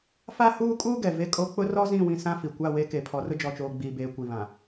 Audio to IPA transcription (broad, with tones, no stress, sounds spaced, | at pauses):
f a˦ h uː˦ kʼ uː˦ ɡ ɛ˨ v e˦ kʼ o˦ k͡p ʊ˦ r ɔ˦ z ĩ˦˨ w ĩ˦ s ã˦ f i˨ kʷ a˦˨ w e˦ k e˨ pʰ ɔ˨ r ʊ˦ d͡ʒ ɔ˨ t͡ʃ oː˨ ɡ͡b iː˨ b eː˨ kʷ i˨ β ã˨